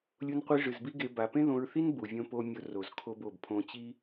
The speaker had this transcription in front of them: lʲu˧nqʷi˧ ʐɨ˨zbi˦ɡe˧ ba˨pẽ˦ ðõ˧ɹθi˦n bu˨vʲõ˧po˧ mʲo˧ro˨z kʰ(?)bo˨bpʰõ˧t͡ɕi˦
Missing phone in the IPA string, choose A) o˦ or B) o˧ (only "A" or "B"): B